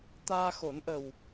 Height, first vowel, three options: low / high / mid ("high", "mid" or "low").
low